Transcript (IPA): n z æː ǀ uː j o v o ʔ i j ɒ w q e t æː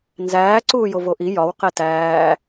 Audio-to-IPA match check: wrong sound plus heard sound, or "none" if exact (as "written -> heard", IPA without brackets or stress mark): none